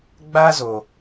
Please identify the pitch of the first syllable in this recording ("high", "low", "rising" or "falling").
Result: high